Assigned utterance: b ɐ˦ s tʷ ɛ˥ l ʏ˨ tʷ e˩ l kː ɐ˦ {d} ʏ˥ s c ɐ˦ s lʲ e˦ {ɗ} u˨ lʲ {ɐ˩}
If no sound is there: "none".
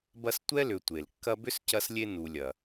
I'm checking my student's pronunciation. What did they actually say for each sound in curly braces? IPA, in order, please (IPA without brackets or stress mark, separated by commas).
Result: b, n, ɐ˩